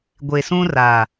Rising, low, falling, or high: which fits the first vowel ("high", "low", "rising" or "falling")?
low